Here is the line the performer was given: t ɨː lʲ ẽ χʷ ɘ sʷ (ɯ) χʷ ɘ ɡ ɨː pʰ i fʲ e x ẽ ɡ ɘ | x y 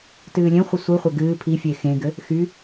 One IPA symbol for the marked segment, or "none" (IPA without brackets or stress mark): ɯ